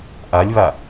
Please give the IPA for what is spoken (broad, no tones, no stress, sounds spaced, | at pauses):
ʔ a lʲ β a